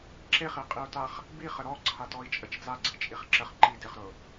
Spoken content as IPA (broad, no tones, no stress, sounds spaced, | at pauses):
ǁ e χ i qʼ i u̯ t a χ | b i χ ə ɾ ɔ ǀʰ a t ɔ i̯ t͡ʃʼ ə t͡ʃ d͡z a ɡ͡ǀ i t͡ʃʼ i χ ǁ ə χ ǃ i d ɪ χ ɾ ʊ